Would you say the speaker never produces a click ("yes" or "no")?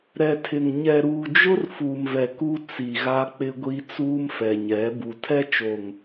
yes